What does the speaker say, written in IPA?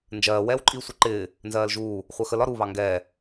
n d͡ʒ ɜː w ɛː w ǃʼ iː sʷ ə ǃ ɪː | n z ɜː l ʒ uː | χʷ ɜ x ə l ɒ ɾ u β ɑ ŋ ɡ ɛː

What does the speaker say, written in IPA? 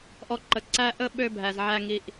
ʔ ɔ˦ ǃ ə˦˨ ǀ æ˧ ʔ ə˦ ɓ ø˦ bʱ æ˧ z ʕ æ˦ ŋ i˧ ʔ

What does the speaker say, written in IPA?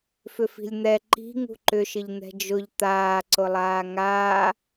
f ʏ f i̤ lʲ n̪ ɛ ǃ i̤ ŋ ṳ ǃ ʏ ʃ ɪ ʎ n̪ ɛ̤ d͡ʒ ʊ ʎ t̪ aː ǀ ʊ lˠ aː ŋ aː

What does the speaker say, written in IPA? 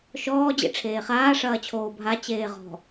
ʃ ɔː d͡ʑ ḛ ʈ͡ʂʰ eː χ aː ʂ ɐː t͡ɕʰ oː bʱ a t͡ɕ eː ʁ ɔ̤

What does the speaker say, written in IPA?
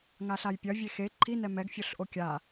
ŋ a ɬ a j pʲ ɐ vʲ e x e ǃʰ i n ɛ m ɛ ɡ fʲ o ɬ ʔ o kʲ a

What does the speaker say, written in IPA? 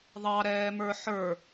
ðˤ ɑ ɾ ɛː m ə˞ ħ ə˞

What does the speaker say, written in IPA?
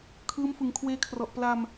kʰ ɯː˦˥ m f ɯ˨˩ ŋ kʰ w eː˧ kʰ r ɔ˨˩ ʔ p l a˧ m

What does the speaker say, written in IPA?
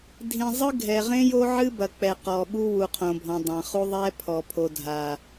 dʱ ĩ˨ zˤ ɨ˦ ɡʱ ɛ˨ ʁ ẽ˦ j o˦ ʕ ɨ˦ b ɐ˨ k͡p ɛ˨ q ɔ˨ ɓ u˦ w u˨ qʰ õ˨ bʱ ɔ̃˨ dˤ ã˨ χ u˦ ðˤ ɛ˦ pʰ ɔ˨ pʰ o˨ dʱ a˨

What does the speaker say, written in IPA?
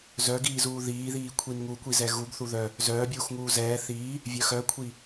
z œ ɡ iː z uː ð iː ð iː kʷʰ i n ŋ u kʷ i z ɛ ɣ u ɡ θ u ð œ | z œː bʲ uː x ŋ uː z ɛː θ iː | vʲ œ x œ kʷʰ i

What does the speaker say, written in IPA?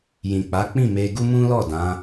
j ĩ˨ k͡p a˨˦ k͡p ĩ˦˨ m e˧ ɡ u˦ m ũ˦ l ɔ˦˨ d ã˨˦

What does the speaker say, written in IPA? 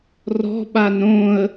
r ɔ̤ ɓ a n ɾ õ ə̯

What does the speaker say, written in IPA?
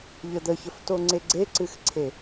ʎ ə d̪ ə ç ə f t o ŋ͡ǀ e ɡ͡ǀ e ǀ ɨ x ǀʰ e

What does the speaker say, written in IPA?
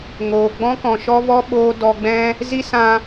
ŋ oː˨ ɡ͡b ɔ̃˦ k ɔ̃˨ ʃ ɔ˦ v ɔ˦ ɓ oː˦ d ɔ˧ ɡ͡b ɛ̃˦ | z i˦ s ã˧

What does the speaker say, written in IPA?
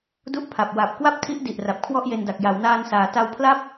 d u˦˥ ʔ pʰ a˨˩ p̚ w a˨˩ p̚ k w a˥˩ p̚ tʰ i˦˥ ʔ d i˨˩ ʔ r a˨˩ p̚ kʰ w ɔ˥˩ ʔ j e˧ n d a˨˩ k̚ j a˩˦ w n aː˧ n s aː˩˦ t a˧ w pʰ l a˥˩ p̚

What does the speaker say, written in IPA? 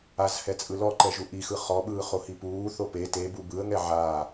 a z h ɛ t͡sʼ ɯ l ɔ ǃ ɛ ʒ u ʔ i x ɯ χ ɔ ɓ ɯː χ o h i p uː θ o p e t e b u b ɯ ə̯ ŋ ɛ ʕ aː

